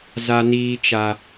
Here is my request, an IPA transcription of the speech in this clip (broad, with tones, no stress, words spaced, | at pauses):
za˦niː˦t͡ʃa˦